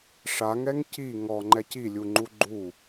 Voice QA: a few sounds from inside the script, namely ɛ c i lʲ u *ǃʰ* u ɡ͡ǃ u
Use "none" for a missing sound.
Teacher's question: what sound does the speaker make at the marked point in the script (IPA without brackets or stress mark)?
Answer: ŋ͡ǃ